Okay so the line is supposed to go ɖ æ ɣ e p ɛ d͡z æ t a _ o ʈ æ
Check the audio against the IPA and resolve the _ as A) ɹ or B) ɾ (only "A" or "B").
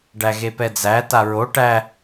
A